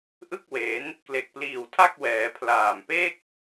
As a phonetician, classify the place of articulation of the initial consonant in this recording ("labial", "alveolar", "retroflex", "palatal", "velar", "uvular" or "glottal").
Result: glottal